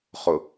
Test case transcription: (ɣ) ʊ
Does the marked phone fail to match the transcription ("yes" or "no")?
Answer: yes